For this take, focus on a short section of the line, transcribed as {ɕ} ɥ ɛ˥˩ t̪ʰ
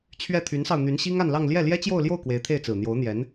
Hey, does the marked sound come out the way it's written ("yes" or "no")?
no